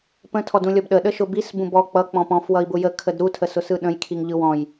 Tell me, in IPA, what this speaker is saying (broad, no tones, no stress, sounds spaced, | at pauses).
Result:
p ə̃ tʰ ɔ d ũ lʲ ɔ b ɗ ə ɗ ə ʃ ʊ b i s b ũ b ɔ k͡p ʌ k͡p ɔ̃ p ɔ̃ f w ʌ i̯ b ʊ j ə kʰ ə d ɾ u tʰ ə s ʊ s ɯ ɗ ə̃ j kʰ i ŋ ʎ ɯ w ɔ̃ j